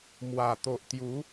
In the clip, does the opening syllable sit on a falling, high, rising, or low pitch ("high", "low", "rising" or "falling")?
low